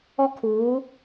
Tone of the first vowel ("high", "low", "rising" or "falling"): high